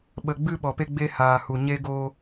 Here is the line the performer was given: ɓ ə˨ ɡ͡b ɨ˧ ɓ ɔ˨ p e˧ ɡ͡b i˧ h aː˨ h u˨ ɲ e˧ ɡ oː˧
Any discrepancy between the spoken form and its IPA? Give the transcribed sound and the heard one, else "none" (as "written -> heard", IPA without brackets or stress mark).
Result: i˧ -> e˧